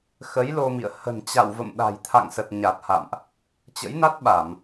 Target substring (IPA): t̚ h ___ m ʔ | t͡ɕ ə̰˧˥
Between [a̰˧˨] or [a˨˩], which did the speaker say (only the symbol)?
a̰˧˨